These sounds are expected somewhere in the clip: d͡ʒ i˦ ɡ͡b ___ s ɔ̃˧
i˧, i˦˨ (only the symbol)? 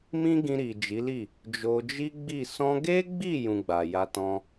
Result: i˦˨